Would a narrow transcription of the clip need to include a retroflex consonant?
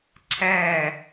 no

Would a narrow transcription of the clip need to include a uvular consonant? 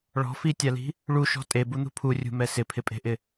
no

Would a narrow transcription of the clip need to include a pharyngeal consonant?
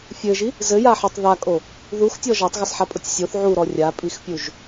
yes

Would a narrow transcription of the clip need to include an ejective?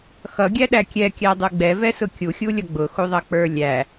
no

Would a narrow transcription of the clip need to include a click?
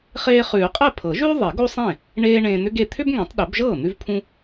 no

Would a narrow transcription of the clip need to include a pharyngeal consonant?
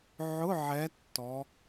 yes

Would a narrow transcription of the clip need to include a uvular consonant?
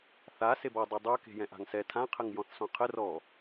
yes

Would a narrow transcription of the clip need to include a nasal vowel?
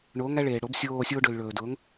no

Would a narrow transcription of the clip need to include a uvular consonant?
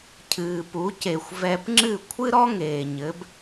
no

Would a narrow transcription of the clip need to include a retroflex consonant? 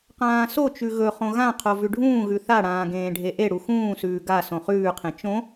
yes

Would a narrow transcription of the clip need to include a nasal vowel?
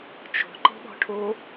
no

